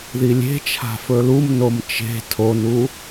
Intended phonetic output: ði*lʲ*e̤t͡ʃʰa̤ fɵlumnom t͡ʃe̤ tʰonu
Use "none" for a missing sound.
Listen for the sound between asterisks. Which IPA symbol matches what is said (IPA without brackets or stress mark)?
lʲ